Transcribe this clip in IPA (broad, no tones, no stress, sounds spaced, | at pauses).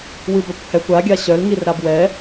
w ɨ b œ kʷ h ɛ kʷ a ɡʲ a ɕ œ l ŋ i r ɾ a b w ɛ